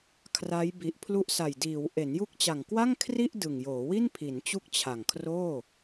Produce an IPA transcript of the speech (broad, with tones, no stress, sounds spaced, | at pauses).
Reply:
kʰ r a˦˥ j b i˨˩ ʔ pʰ l u˦˥ ʔ s a˨˩ j d iː˩˦ w ʔ e˩˦ n j u˦˥ k̚ t͡ɕ a˨˩ ŋ k w a˥˩ ŋ kʰ r i˥˩ ʔ d ɯ˨˩ ŋ j oː˩˦ w i˥˩ n pʰ i˩˦ n t͡ɕ u˥˩ k̚ t͡ɕʰ a˨˩ ŋ kʰ r oː˥˩